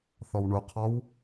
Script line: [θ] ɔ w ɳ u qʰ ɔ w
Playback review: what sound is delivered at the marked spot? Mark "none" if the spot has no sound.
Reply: θ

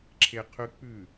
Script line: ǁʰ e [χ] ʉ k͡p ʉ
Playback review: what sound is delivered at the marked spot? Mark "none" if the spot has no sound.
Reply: qʰ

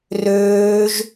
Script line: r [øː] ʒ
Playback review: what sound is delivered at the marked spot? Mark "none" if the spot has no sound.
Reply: øː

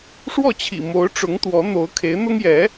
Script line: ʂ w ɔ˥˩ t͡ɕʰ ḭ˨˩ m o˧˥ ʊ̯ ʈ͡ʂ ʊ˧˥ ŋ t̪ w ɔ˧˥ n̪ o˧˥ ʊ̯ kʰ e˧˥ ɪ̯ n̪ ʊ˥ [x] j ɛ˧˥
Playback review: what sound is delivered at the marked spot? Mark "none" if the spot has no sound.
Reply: ŋ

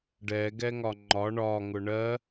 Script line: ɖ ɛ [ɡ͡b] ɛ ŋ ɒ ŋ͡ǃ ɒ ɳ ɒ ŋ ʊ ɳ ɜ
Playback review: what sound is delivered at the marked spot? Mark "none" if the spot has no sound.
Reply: ɡ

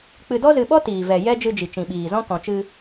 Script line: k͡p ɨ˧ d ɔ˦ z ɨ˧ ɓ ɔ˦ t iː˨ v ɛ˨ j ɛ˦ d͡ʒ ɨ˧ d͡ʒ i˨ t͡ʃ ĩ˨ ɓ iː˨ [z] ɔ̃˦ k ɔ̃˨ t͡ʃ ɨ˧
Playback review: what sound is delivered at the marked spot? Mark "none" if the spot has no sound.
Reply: z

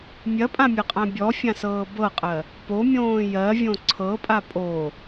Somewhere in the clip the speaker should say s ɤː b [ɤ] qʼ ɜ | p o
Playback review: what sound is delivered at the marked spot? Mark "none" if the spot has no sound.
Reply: ɤ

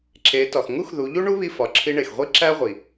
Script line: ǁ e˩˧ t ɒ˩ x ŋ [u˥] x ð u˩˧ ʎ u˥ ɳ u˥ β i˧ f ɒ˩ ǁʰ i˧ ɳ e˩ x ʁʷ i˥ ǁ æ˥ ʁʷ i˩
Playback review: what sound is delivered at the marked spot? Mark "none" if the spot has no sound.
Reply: u˥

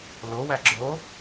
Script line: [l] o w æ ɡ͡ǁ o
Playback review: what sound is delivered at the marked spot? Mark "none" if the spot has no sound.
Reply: l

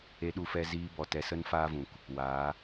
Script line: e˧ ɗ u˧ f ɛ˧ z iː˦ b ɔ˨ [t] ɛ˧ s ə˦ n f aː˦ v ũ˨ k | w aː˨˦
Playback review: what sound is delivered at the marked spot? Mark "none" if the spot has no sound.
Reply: t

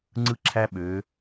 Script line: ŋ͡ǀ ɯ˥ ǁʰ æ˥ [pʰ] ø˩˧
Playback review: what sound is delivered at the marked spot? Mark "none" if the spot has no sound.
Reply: ɓ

